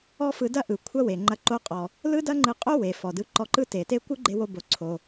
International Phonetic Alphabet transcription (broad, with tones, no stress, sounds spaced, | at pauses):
ɔ˥ f ɯ˧ d ɐ˥ ʔ ɯ˩ kʷʰ ɐ˥ w e˩ ŋ͡ǃ ɐ˧ ǃ o˧ qʼ ɔ˩ | l ɯ˥ d ɐ˥ ŋ͡ǃ ɯ˧ qʼ o˥ w e˩ f ɔ˩ d ɯ˧ ǃ ɔ˧ ǃ ɯ˥ t e˩ t e˥ kʷ ɯ˥ ɡ͡ǃ e˧ w o˧ b o˩ ǀʰ o˩